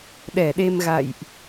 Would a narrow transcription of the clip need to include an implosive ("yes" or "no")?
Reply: yes